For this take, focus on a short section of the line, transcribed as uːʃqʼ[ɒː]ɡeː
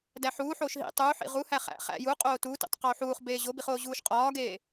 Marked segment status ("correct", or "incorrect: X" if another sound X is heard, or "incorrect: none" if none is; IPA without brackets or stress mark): correct